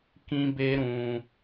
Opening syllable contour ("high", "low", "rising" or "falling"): high